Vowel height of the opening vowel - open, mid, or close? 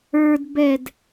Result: mid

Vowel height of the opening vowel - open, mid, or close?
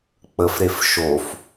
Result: mid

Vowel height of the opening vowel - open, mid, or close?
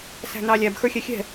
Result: open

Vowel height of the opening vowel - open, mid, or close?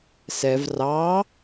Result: mid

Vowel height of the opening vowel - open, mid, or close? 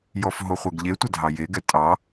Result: mid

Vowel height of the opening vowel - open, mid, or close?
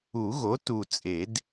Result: close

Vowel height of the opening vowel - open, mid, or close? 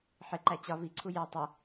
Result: close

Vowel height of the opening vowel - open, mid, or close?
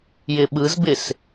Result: close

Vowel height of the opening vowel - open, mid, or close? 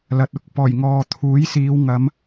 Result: open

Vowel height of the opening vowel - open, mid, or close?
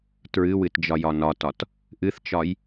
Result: close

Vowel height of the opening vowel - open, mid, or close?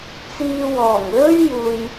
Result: close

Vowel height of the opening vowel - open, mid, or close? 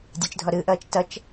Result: close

